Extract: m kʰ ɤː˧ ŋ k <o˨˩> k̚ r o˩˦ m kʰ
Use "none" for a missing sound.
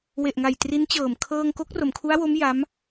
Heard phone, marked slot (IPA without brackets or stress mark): o˦˥